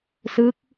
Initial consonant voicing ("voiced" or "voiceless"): voiceless